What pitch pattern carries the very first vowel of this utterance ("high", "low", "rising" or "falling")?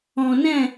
low